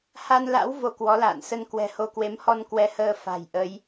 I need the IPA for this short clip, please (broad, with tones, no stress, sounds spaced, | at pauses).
h a˧ n l a̰˧˥ w v o˧ k w ɔ˨˦ l a̰ː˧˨ n s ə˧ n k w ɛ̤˨˩ h o˧ k w e˨˦ m h ɔ˧ n k w ɛ˧ h əː˧ f a̤˨˩ j ʔ ə˨˦ j